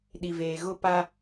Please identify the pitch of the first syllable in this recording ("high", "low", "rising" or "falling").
low